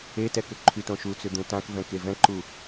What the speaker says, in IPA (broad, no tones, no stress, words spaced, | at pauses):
etɛkʏ ǃʰytõʃut͡sʏ d̪ũtãk vɛ̃kevɛ̃ǃu